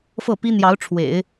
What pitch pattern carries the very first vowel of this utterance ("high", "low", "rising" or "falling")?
falling